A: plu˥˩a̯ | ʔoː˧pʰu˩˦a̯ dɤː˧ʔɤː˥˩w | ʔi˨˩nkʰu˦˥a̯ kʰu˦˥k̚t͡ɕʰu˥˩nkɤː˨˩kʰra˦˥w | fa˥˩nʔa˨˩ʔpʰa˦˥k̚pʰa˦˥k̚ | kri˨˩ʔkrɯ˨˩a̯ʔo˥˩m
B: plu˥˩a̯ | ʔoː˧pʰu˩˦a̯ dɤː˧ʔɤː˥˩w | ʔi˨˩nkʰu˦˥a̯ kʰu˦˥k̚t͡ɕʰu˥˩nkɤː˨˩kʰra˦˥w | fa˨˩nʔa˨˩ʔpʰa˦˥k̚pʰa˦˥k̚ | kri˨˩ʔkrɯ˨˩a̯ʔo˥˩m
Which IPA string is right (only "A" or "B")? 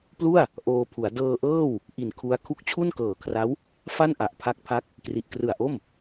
A